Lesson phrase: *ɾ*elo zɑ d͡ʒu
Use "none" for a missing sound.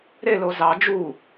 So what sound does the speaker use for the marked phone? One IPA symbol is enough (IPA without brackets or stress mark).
ɾ